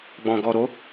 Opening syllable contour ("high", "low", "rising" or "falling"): low